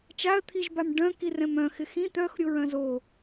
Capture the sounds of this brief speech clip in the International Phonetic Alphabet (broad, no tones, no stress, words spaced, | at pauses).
t͡ʃaə̯t̪ʰiʒbam ɖœ̃ kirɛ̃mœ̃xɪ xĩ t̪œx ɾʲoɹœ̃zo